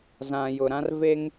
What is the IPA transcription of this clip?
z ã˨ j ʊ˨ ɾ ã˦ r v e˦ ŋ

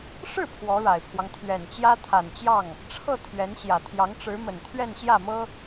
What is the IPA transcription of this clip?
ʂ ɻ̩˥˩ pʰ w ɔ˧˥ ɻ a˨˩ ɪ̯ pʰ w ɑ˦ ŋ t̪ʰ ɥ ɛ˨˩ n t͡ɕ j ä˥ t̪ʰ a˨˩ n t͡ɕ j ɑ˥˩ ŋ | ʈ͡ʂʰ ɤ˥˩ t̪ʰ ɥ ɛ˧˥ n ɕ j ä˨˩ t̪ʰ j ɑ˧˥ ŋ ʈ͡ʂ ɻ̩˧˥ m ə˨˩ n t̪ʰ ɥ ɛ˥˧ n ɕ j ä˥˩ m ɤ˥

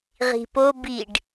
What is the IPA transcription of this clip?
ʁ i̤ p o b i ɖ

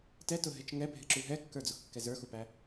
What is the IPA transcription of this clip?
t ɛ t ʊ ɦ ɪ t͡ʃ ŋ ɛ bʱ ɪ ǁ u ɦ ɛ kː ə˞ d͡z ʊ x kː ɛ z ə˞ x u p æ

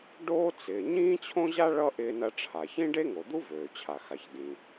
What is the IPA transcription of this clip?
ɖ oː˥ t͡s ɪː˩ ɲ ĩː˥ t͡ɕʰ õ˥ ʑ a˥ ɭ ʌ˥ ʔ ɪː˥ n ɐ˥ ʈ͡ʂʰ a˩ ç ĩ˥ ɖ e˥ ŋ o˩ d̪ u˥ v øː˩ t͡ɕʰ a˩ x a˩ ç d ĩ˩

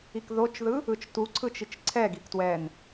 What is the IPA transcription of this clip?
i k ð o t͡ʃ ð ɯ | ɯ t͡ʃ t u ǀʰ ɯ t͡ʃ i t͡ʃ ǀʰ ɛ ɡ i k t w ɛ n

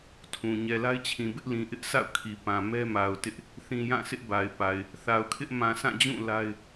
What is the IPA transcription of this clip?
tʰ ũ˨ ɲ ɛ˨ l a˦ ɪ̯ t͡ɕʰ ĩ˨ b ɪ˦ ʔ l ĩ˨ ʔ ɪ˦ ʔ sʰ a̰˦˨ ʊ̯ kʰ i˨ p ã˨ m ɛ˦ m a˨ ʊ̯ t ɪ˦ ʔ | θ ĩ˨ j ã˦˨ sʰ ɪ˦ ʔ b a˨ ɪ̯ p a˨ ɪ̯ | θ a˨ ʊ̯ kʰ ɪ˦ ʔ m ã˨ s ã˦˨ d͡ʑ ũ˦˨ l a˦ ɪ̯

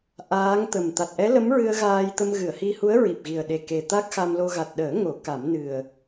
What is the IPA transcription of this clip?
ʔ aː˧˥ ŋ t̪ ə˨˩ m t̪ a˨˩ t̚ ʔ ɛ˧˥ l ə˧˥ m ɹ ɨ˧ ə̯ ɣ aː˧ j t̪ ə˧ m ɣ ɨ˨˩˨ ə̯ h i˧ h u˧˥ ə̯ ɹ i˨˩ p̚ ɣ i˨˩ ə̯ ɗ e˨˩ k e˨˩ t̪ a˦˥ k̚ x a˧ m l o˧ ɣ a˨˩ t̚ ɗ əː˨˩˦ ŋ o˨˩˦ k a˨˩˦ m n ɨ˨˩ ə̯

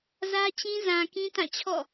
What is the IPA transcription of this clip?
z ä˦ t͡ɕ ĩ˦ z ã˨ k ĩ˦ t ã˦˨ t͡ɕʰ ɔ̰˦˨

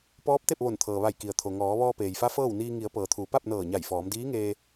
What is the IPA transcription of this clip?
p ɔː˧˥ p̚ t̪ e˥˨ p̚ ʋ o˧˩ n t̪ʰ ɤː˩ ʋ a˧˩ j k i˩ ə̯ t̪ʰ o˩ ŋ ɔː˩˧ ʋ ɔː˧ p eː˩ j f a˧˥ f ɤː˥˨ w n iː˧ ŋ i˩˧ ə̯ p ɤː˩ t̪ʰ uː˩˧ p a˥˨ p̚ n ɤː˧˩ ɲ a˧˩ j f ɔː˩˧ m d iː˧˥ ŋ eː˧

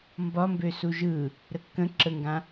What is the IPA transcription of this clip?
m b ɒ m b ø s u ʒ ɯ | ɾ ə kː ə̃ ǁ ə ŋ ɡ ã

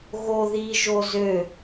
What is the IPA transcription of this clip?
ɣ o ð i ʒ o z ø

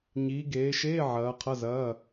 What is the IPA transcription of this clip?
ɲ iː˨˦ ɡ eː˨˦ ʃ eː˧˥˧ ʕ ɐː˨˦ qʰ ɐ˧˥˧ z ɐː˧˥˧

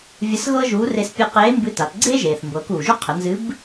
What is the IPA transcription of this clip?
vʲ ə˧˥ s ɣ ɤ˥ ʒ uː˧˥ r e˧ s pʲ ɨ˧ q eː˧˥ m b ɨ˧˥ t a˩˧ t ɡ͡ǀ eː˥ ʒ eː˩ θ m b ɤː˩˧ k uː˩ ʒ u˥ qʰ ə˩˧ n z ɨ˧˥ b

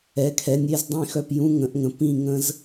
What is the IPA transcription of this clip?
ɛ˩˥ kʰ ɛ˩˥ nʲ e˧˥˧ z dˤ ĩ˥˩ x œ˥˩ p j ũ˧˥˧ ŋ ə̃˨˩˦ ʔ ŋ ə̃˩˥ p ĩ˥˩ ŋ ə̃˦˥ z

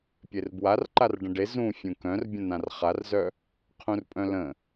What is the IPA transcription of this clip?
pʲ e r b w a r ǃ a r ɖ ə̃ ɖ e z ũ fʲ ũ k œ̃ r bʲ ə̃ n ã r χ a r z œ | qʰ ũ r pʼ œ̃ l ə̃

